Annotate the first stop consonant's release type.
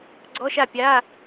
click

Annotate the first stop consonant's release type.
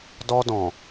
plain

